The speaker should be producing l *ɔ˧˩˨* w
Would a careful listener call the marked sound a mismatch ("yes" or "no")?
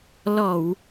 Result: no